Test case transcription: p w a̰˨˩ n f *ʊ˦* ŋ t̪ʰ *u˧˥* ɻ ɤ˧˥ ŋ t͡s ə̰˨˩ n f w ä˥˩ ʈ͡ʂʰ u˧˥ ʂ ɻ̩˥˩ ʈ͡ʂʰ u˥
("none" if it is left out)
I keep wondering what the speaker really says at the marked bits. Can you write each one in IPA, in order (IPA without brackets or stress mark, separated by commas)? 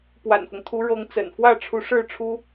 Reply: ʊ˦, u˧˥